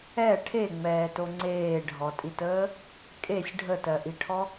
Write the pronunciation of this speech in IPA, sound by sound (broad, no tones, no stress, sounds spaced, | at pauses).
ɛ ʈʰ e ŋ͡m ɛː t o ŋ͡ǀ eː ɖʱ ɔ tʼ i t əː | kʼ e sʲ ɖʱ ə t ɜ ʔ i ʈʰ ɔ